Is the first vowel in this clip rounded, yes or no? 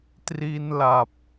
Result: no